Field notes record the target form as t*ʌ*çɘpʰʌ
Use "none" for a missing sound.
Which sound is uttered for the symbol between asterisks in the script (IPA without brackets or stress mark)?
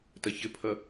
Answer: ʌ